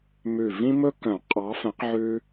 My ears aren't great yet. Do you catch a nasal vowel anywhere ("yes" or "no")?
yes